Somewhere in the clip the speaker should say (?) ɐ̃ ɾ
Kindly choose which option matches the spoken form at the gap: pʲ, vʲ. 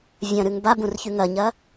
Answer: vʲ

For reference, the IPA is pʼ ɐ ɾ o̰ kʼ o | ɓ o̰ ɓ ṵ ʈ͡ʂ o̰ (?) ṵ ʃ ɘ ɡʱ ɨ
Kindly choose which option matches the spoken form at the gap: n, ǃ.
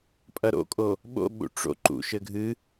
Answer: ǃ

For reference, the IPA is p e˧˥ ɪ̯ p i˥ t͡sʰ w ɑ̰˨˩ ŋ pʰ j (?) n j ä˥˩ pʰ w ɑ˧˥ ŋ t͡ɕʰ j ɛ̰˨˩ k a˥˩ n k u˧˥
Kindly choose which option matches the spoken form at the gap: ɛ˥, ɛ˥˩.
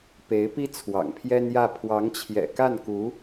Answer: ɛ˥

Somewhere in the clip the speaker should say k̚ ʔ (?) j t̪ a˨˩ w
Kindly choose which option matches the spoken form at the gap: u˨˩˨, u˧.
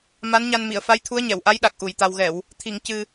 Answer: u˨˩˨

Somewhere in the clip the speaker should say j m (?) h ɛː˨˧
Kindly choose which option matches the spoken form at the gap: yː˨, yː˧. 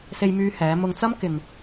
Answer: yː˧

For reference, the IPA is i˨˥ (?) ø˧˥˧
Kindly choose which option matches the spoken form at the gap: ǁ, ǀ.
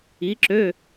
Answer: ǁ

